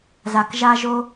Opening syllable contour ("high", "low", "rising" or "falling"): low